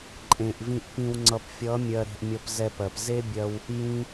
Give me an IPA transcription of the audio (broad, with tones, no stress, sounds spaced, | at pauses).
ǃʼ ẽ˨ ʔ v ĩ˨ ʔ p ĩ˨ w ŋ͡ǀ ʌ˨ p fʲ ʌ˨˦ mʲ ɜ˧ ɾ e̤˧ ʔ mʲ ʌ˧ p z ɛ˧ p ɜ˨ p z e˦ bʲ ɜ˧ w | j ĩ˦